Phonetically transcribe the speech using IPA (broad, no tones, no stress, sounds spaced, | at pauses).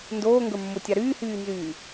n d oː ŋ ɡ ə˞ mː o tʲ a ɾ yː h yː n z yː